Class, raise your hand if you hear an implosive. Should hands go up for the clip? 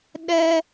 yes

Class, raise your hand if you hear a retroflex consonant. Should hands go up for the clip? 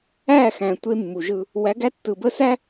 no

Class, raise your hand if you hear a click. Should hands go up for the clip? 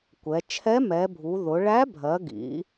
no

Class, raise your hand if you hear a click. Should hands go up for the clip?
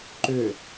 yes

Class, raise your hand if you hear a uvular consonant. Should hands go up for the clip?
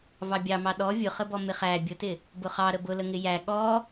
yes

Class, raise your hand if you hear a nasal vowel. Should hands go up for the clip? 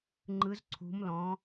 yes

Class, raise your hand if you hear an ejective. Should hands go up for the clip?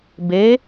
no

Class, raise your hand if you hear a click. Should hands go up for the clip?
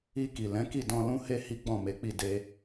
no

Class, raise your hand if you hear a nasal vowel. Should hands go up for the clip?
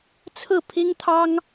no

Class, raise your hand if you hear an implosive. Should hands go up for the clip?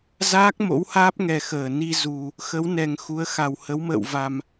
no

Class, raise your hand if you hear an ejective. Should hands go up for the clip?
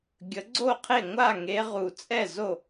yes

